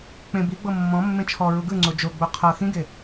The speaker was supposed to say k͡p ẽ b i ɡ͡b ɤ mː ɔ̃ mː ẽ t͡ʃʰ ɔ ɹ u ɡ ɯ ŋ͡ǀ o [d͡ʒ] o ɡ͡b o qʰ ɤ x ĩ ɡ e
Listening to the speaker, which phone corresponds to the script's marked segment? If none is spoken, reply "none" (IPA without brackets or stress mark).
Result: d͡ʒ